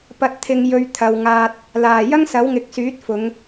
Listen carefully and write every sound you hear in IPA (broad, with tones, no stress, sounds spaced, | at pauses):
p ɐ˨ t̚ t̪ʰ ɪ˨ ŋ j ɵ˨ ɥ t̪ʰ ɐ˨ w ŋ aː˧ t̚ | l aː˨˩ j ɐ˥ ŋ s ɐ˨˥ w ŋ ɪ˨ k̚ s yː˨˥ t̚ f ʊ˨˧ ŋ